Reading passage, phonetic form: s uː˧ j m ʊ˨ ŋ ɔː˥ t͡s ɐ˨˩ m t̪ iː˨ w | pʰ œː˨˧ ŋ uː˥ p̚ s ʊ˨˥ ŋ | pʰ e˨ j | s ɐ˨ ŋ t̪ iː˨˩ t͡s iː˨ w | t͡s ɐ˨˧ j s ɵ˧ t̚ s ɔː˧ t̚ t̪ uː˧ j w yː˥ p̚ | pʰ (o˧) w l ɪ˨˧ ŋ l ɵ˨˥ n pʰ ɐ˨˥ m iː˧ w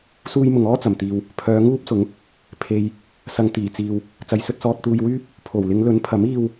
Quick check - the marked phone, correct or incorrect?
incorrect: o˨˩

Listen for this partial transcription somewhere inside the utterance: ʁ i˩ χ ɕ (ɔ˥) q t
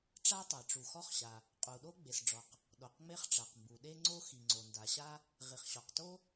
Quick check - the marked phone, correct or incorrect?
incorrect: ɔ˩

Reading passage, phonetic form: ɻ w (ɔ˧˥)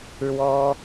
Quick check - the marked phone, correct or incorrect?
incorrect: ɔ˥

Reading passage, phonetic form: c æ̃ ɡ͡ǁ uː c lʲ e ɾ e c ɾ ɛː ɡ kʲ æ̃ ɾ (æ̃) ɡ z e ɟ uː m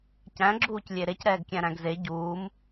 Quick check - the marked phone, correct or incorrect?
correct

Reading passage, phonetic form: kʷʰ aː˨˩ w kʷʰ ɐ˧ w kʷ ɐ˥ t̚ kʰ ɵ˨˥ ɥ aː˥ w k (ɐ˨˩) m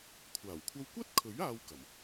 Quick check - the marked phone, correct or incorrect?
correct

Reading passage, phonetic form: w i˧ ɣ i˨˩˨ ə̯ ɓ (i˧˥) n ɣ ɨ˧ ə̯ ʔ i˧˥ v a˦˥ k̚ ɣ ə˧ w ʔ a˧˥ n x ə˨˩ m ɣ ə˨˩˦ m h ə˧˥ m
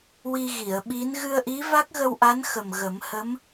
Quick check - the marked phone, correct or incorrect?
correct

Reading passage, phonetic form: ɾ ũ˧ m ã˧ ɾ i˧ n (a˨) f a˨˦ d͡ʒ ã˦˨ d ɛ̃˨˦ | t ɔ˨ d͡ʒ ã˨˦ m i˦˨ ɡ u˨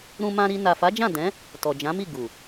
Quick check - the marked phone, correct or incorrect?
correct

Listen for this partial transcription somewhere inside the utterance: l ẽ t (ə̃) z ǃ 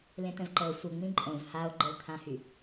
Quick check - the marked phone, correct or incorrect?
correct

